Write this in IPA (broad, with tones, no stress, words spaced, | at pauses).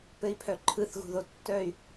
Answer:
pɘ˩˥i̯pʰœ˨ǃʰɯ˨˩˦θ ɣṳ˨ðo˨ tːœ˦˨y̯